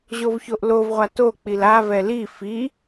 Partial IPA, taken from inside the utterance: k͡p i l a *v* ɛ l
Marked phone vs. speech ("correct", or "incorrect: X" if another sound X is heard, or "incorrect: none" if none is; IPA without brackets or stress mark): correct